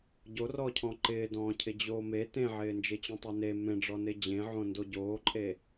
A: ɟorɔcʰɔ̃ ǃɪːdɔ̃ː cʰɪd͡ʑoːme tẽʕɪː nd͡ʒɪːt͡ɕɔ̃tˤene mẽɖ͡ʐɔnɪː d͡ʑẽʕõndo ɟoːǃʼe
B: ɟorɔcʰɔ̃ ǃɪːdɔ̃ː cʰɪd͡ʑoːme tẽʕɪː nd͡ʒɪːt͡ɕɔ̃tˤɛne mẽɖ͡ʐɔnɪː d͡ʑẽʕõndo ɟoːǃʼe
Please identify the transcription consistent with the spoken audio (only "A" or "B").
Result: A